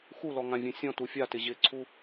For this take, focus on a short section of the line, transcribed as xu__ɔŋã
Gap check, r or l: l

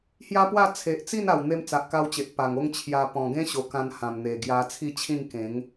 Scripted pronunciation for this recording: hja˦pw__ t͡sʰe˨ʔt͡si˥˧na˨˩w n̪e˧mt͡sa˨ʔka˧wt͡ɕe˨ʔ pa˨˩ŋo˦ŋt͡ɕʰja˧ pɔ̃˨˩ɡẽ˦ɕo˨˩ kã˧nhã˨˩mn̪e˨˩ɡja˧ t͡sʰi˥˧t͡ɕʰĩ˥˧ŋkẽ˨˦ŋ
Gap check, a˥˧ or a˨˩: a˥˧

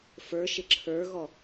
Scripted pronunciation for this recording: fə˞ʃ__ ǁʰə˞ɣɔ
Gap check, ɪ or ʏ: ɪ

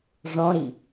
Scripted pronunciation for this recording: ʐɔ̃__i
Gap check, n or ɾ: ɾ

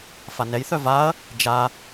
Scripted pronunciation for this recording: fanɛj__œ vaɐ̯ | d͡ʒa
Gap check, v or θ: θ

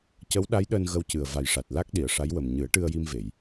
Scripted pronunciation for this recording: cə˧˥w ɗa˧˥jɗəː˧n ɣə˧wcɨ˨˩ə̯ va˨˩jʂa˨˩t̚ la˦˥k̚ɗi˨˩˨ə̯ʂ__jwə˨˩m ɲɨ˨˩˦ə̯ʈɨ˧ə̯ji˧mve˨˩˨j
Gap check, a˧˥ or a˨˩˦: a˧˥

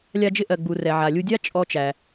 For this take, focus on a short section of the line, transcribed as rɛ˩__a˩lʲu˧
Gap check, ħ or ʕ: ʕ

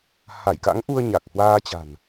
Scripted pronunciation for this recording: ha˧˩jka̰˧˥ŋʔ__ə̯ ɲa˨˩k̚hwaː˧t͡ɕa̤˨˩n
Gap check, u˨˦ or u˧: u˧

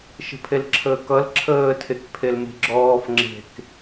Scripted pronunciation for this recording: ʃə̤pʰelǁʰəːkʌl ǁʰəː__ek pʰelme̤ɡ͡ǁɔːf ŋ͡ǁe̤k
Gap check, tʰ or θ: tʰ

